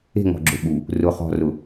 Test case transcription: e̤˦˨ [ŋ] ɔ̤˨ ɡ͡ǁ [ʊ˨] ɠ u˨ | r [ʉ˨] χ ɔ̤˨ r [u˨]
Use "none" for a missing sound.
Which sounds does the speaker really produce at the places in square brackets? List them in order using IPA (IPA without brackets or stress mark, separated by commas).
ŋ, ʊ˨, ʊ˨, ʊ˨